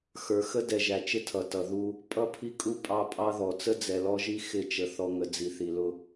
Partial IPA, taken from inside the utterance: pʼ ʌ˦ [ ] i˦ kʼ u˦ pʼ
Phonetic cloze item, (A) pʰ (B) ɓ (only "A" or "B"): A